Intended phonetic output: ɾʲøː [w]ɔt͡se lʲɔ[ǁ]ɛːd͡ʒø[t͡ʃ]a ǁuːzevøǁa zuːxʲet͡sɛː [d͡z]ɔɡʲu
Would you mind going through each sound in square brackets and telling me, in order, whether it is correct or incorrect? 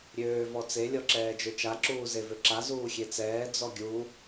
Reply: incorrect: v, correct, correct, correct

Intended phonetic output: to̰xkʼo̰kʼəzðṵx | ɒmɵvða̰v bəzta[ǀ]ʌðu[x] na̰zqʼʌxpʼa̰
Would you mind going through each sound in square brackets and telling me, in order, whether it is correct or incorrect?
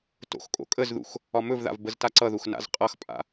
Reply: correct, correct

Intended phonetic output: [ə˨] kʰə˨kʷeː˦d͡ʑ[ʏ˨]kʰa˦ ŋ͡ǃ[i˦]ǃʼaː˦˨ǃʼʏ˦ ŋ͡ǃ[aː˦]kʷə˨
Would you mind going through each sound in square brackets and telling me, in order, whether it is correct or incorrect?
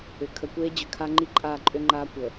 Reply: incorrect: ʏ˨, correct, correct, correct

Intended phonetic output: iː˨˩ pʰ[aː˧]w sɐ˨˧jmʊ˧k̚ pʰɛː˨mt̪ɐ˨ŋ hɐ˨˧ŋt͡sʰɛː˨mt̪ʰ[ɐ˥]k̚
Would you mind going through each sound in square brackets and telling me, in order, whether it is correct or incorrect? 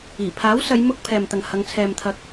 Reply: incorrect: aː˨˥, incorrect: ɐ˨˥

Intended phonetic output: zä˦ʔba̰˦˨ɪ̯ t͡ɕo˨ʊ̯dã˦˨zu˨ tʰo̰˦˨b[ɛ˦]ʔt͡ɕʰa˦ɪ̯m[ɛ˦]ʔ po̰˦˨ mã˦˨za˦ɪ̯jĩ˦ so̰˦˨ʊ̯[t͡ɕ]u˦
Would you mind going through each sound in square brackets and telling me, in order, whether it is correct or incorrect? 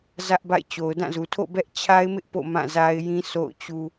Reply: correct, incorrect: ɪ˦, correct

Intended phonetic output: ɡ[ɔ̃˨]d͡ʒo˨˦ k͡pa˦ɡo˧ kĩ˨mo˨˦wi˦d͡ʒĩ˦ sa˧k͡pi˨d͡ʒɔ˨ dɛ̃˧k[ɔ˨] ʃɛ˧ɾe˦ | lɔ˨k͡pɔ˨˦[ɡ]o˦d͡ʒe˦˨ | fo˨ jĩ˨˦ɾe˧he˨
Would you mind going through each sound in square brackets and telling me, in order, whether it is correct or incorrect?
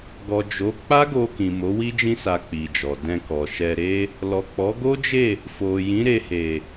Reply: incorrect: ɔ˨, correct, correct

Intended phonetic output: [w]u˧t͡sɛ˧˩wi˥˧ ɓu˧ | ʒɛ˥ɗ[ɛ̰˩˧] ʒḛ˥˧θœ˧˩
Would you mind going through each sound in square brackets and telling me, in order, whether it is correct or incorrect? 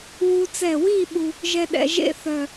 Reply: correct, correct

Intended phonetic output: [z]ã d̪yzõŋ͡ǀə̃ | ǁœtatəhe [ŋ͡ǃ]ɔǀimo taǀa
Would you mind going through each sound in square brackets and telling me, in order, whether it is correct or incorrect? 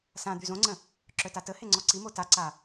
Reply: incorrect: s, incorrect: ŋ͡ǀ

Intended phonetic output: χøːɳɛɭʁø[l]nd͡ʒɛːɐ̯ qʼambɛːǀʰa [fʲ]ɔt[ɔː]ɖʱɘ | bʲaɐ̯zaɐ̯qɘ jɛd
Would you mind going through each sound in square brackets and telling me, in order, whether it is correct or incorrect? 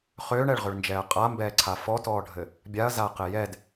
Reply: incorrect: ɭ, incorrect: f, correct

